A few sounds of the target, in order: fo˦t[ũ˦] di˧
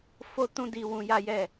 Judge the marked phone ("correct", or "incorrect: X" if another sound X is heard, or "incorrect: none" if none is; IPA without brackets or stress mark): correct